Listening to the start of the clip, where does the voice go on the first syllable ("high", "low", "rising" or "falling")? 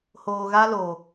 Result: low